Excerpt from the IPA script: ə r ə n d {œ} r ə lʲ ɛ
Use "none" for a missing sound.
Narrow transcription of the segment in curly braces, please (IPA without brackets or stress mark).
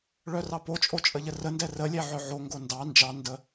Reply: ɛ